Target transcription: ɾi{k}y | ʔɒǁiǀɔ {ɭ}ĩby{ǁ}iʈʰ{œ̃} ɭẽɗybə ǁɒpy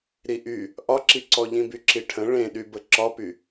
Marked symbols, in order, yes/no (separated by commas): no, no, yes, no